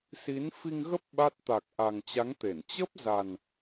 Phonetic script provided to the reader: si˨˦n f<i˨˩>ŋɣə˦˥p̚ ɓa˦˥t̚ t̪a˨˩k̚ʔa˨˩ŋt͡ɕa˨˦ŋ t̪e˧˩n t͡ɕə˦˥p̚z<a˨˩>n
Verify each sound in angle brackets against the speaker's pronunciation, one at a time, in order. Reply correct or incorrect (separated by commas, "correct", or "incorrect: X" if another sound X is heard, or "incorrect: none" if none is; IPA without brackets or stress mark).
incorrect: i˧, correct